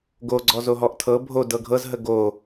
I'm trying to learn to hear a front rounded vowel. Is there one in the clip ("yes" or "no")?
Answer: no